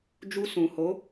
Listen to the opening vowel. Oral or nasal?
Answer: oral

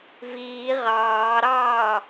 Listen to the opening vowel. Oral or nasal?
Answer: oral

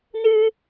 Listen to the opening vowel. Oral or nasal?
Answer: oral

